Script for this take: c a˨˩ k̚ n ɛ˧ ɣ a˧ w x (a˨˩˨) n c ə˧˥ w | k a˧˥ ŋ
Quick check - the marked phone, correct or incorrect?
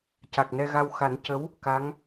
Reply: incorrect